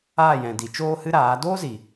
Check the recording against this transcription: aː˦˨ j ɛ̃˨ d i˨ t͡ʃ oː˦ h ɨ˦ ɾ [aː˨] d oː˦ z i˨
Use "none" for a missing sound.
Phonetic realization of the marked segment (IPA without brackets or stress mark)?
aː˨˦